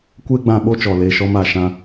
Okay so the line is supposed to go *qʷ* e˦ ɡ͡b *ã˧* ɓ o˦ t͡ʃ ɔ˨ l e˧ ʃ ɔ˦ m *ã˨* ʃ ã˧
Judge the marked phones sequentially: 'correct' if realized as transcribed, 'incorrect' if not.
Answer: incorrect: kʷ, correct, incorrect: a˨

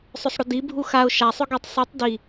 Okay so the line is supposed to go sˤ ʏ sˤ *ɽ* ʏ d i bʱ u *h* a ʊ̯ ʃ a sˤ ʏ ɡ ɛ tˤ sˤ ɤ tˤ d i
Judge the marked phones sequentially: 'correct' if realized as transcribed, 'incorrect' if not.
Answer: correct, incorrect: x

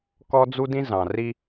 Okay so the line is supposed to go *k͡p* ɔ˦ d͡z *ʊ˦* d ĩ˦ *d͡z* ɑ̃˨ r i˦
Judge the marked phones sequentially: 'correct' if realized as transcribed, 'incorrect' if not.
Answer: incorrect: k, incorrect: u˦, incorrect: z

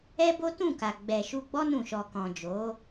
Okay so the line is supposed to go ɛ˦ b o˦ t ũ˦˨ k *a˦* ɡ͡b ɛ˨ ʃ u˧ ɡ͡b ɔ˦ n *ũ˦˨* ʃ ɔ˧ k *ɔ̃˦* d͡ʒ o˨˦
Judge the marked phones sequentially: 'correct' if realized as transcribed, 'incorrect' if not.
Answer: incorrect: a˨, correct, incorrect: ɔ̃˨

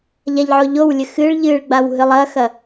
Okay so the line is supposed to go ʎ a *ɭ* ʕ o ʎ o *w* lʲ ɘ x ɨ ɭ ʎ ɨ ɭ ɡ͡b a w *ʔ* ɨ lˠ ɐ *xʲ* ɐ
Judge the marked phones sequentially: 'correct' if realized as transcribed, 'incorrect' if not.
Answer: incorrect: ʎ, correct, incorrect: ɦ, incorrect: x

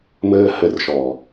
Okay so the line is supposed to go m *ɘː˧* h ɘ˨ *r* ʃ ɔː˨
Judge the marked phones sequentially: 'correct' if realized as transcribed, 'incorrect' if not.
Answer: correct, correct

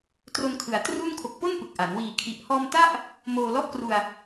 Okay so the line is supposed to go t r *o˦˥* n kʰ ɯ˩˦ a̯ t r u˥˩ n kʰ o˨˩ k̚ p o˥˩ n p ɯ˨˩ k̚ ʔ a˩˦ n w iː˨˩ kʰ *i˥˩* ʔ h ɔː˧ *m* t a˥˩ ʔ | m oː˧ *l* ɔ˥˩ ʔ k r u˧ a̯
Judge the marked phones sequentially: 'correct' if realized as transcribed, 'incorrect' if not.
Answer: incorrect: o˧, incorrect: i˨˩, correct, correct

